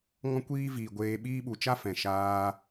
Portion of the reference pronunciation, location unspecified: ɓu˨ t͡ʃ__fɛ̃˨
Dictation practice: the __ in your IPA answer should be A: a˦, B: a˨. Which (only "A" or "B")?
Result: A